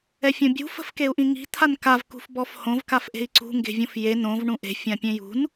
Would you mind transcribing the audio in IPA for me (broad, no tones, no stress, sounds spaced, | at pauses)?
ɛ fʲ õ bʲ ṳ f ə̤ f k e u̯ ʔ ĩ ŋ i̤ t̪ʰ a n k a v k ṳ f b ɔ f h õ v k a f ʔ e̤ i̯ ǀ ṳ ŋ ɡ e̤ vʲ õ f j e n õ v ɳ ũ ʔ e̤ fʲ ã pʲ ẽ j ṳ n